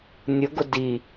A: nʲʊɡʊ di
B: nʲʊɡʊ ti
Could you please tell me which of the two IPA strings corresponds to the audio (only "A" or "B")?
A